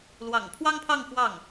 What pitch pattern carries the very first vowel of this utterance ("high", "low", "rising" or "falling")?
low